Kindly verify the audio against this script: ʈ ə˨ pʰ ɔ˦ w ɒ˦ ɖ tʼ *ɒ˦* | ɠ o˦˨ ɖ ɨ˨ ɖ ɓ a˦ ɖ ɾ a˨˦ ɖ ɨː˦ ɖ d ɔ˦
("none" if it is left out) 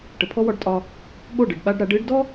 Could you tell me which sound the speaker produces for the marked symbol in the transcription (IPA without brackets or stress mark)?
ɒ˦